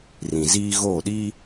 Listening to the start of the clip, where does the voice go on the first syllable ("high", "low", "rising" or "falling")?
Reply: low